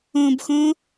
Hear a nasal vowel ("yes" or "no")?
yes